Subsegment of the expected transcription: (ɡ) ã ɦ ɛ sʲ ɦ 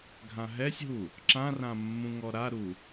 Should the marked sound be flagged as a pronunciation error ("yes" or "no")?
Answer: yes